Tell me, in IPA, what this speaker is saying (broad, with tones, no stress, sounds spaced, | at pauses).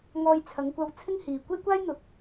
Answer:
ŋ ɔː˧ j t͡sʰ ɐ˨˧ ŋ kʷ ɐ˧ w t͡sʰ ɪ˥ ŋ h iː˨ kʷ e˥ j kʷ aː˥ j n̪ ʊ˨˥ k̚